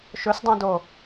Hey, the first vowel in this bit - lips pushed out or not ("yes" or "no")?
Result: yes